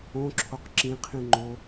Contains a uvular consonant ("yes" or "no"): yes